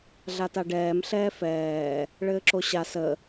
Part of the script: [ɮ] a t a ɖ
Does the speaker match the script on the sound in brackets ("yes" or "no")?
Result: yes